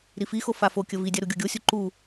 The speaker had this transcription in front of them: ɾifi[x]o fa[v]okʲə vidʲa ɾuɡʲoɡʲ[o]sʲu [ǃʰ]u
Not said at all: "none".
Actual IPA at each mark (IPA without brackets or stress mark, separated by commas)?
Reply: x, f, o, ǃ